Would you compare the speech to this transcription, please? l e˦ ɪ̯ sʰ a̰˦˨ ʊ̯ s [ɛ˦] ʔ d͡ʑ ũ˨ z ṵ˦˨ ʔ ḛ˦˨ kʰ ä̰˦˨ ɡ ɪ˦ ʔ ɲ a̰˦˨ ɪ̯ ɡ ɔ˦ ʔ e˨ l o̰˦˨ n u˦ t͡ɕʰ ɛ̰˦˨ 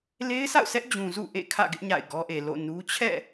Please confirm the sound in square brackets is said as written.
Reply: yes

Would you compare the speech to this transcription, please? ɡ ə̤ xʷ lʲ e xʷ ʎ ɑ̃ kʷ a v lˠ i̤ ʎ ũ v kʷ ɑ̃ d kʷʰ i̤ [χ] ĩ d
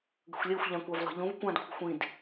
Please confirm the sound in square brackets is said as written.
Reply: no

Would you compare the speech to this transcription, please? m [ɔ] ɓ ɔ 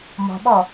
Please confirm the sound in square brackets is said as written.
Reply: no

